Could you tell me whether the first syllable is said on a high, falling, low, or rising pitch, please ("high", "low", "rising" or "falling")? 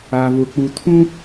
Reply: low